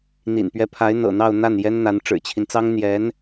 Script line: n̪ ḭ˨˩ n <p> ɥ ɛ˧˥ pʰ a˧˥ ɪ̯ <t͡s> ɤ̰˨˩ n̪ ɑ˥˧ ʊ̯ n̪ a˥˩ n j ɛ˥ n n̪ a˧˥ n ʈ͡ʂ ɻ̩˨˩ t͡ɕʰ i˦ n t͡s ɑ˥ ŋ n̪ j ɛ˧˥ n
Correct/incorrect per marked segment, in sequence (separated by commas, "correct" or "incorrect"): correct, incorrect